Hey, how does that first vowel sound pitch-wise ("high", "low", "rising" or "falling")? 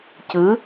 rising